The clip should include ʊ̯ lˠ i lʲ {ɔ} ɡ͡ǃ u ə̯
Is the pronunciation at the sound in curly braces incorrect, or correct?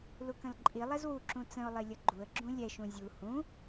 incorrect